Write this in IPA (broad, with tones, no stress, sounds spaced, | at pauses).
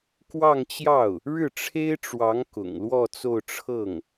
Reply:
k w ɑ˥˧ ŋ t͡ɕ j ɑ˥˩ ʊ̯ | ɻ ɻ̩˥˩ ʈ͡ʂʰ e˥ ɪ̯ ʈ͡ʂ w ɑ˧˥ ŋ k ʊ̰˨˩ ŋ l w ɔ˥˧ t͡s o˥˧ ʊ̯ ʈ͡ʂʰ ɤ˥˩ ŋ